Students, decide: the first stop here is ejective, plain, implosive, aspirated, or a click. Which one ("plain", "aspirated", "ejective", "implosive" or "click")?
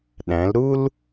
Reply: implosive